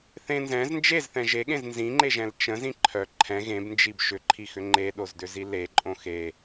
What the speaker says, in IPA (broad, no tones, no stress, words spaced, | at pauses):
θẽ nzɛ̃z nd͡ʒezθɛ̃ ʒeɠẽz nzĩŋ͡ǃeʒɛ̃l t͡ʃə̃zĩ ǃʰœ ǃʰɛ̃ ɣẽbnd͡ʒib ʃʏǃʰixʏ ŋ͡ǃeɗozdʏzi leǃʼõ xe